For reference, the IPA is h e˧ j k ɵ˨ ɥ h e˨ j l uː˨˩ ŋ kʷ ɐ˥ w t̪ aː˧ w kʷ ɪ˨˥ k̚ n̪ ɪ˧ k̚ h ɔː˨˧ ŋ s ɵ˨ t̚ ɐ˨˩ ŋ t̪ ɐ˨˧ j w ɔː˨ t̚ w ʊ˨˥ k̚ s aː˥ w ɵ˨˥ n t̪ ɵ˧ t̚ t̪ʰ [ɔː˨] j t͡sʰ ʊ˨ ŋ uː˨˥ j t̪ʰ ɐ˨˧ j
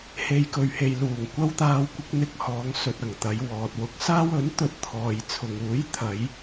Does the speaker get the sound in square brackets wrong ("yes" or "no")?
no